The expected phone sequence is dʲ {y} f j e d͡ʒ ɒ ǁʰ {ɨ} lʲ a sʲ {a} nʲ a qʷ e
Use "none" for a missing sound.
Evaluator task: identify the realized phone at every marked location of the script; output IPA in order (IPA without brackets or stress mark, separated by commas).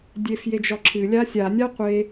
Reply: e, ɨ, a